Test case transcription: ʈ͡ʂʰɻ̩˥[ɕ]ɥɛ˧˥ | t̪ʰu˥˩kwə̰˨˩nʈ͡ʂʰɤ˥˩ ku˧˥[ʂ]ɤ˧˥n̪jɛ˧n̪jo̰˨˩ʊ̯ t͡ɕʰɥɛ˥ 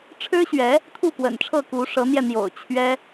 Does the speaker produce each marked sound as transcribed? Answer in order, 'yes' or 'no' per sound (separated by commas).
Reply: yes, yes